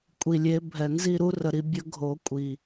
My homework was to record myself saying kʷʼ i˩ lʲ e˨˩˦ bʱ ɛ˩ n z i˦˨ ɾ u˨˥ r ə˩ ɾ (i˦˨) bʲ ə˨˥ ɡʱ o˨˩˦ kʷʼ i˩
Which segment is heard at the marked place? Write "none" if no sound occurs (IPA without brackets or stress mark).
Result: i˦˨